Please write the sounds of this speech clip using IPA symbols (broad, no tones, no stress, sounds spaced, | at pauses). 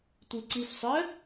tʷ i ǀ i f sˤ ɛ